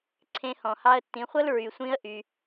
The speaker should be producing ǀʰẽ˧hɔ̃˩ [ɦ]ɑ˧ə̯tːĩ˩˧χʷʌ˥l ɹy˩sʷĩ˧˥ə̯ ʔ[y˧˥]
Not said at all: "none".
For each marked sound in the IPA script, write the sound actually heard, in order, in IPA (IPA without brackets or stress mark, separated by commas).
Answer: h, y˩